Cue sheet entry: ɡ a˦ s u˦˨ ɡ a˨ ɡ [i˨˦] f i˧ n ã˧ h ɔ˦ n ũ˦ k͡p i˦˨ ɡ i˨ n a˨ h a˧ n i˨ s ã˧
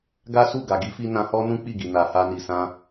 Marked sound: correct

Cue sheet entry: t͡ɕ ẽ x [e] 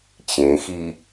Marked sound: incorrect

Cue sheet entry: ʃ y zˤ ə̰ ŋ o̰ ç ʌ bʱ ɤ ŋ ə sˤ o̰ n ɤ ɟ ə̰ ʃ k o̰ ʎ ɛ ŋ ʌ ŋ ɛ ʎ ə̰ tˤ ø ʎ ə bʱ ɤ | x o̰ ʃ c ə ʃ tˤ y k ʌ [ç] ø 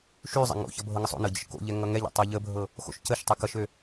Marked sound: incorrect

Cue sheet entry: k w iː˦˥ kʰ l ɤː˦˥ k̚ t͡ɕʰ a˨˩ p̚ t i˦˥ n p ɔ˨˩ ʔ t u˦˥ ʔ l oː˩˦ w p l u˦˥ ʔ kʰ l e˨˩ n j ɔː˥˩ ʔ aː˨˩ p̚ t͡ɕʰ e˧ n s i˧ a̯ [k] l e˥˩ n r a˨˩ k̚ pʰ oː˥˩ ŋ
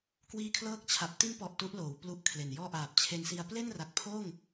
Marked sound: incorrect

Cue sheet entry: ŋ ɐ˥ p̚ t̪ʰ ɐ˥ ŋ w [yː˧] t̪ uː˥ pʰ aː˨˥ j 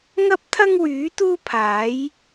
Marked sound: incorrect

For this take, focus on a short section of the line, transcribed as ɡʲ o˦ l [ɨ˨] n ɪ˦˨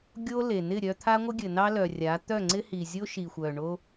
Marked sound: incorrect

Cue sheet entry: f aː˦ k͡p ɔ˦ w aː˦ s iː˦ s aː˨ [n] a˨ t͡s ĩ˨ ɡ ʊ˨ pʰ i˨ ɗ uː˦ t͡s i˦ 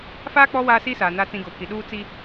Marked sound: correct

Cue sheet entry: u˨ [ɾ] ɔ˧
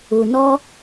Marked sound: incorrect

